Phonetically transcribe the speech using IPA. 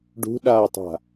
ɖ ṳ ɗ aː tˤ a̤

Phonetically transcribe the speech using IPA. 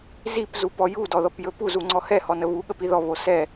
z i p z u p ɔ j u d ɔ ð ɔ p j ɵ p u z u ŋ͡ǀ ɔ h ɛ h ɔ n ə β u ɠ ə p i ð ɔ β o s ɛ

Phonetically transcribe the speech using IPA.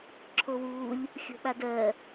ǁʰ o w uː lʲ | xʲ o̤ ɓ a d ɜ

